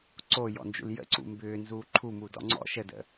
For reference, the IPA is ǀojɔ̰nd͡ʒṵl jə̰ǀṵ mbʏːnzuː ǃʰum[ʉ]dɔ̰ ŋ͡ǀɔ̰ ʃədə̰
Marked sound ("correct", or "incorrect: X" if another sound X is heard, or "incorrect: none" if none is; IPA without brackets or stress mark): incorrect: u